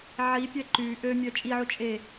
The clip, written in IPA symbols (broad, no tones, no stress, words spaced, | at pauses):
ʕipʲɛ ǃy ʔømʲœ t͡ʃʼiʕu t͡ʃʼe